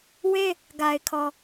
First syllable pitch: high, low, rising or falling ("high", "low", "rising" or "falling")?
high